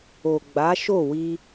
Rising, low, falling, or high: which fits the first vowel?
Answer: low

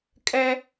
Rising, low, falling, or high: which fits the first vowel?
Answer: high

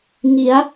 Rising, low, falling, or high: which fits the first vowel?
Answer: rising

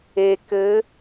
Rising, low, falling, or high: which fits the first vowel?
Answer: low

